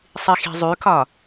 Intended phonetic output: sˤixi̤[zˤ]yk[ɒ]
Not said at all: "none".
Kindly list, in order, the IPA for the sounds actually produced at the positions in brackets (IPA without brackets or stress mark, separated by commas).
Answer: zˤ, ɒ